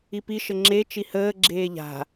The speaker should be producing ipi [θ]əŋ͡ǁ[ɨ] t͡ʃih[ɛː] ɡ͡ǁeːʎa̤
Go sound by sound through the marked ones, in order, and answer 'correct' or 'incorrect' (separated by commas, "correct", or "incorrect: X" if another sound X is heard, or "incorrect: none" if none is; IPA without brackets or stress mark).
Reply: incorrect: ʃ, incorrect: e, incorrect: əː